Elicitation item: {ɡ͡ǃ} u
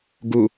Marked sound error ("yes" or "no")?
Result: yes